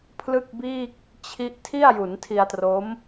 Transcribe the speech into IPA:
pʰ l ɯ˥˩ k̚ b iː˥˩ k̚ | t͡ɕʰ i˦˥ ʔ tʰ i˥˩ a̯ j u˩˦ n tʰ i˧ a̯ t r o˦˥ m

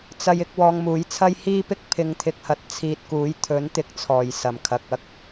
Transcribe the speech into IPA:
t͡s ɐ˧ j ɪ˧ k̚ w ɔː˧ ŋ m uː˨˥ j t͡sʰ ɐ˥ j h iː˥ p ɪ˥ k̚ pʰ ɪ˨˧ ŋ t̪ʰ ɪ˨ k̚ h ɐ˨˥ t̚ t͡sʰ iː˧ t̚ k uː˨˥ j t̪ʰ ɵ˨˥ n t̪ ɪ˨˥ k̚ t͡sʰ ɔː˨˩ j s ɐ˨˩ m kʰ ɐ˨ k̚ ɐ˥ k̚

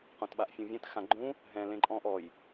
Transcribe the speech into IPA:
q õ t ɓ a ʔ fʲ ũ vʲ ɛ̃ t x ã ɡ͡ǃ ũ | ɦ ɛ̃ l ẽ ǃʼ ɔ̃ː ʔ ɔ j

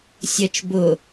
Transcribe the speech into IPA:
sʲ ʌ t͡ʃ b ʊ

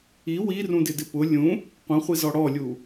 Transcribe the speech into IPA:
i w i r ũ d ɪ d ɪ p ʊ lʲ ũ | qʷ ə̃ χʷ i z ɔ ɽ ɔ lʲ u

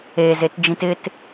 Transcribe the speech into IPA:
e z e t d͡ʒ ĩ t ɪ t

